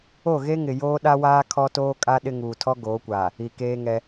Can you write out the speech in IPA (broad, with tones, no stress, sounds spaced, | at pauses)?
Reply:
o˦˨ ɣ e˦ ŋ ɪ˨ j oː˦ ɗ a˦ w aː˦ kʰ ɔ˦ t oː˦ kʼ a˦ ɗ ɪ˦ ŋ uː˨ tʰ ɔ˦ ɡ oː˨˦ kʷ aː˨ | i˨ k eː˦ ŋ ɛ˦